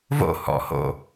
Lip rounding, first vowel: rounded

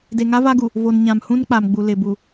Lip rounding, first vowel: unrounded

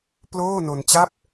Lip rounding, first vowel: rounded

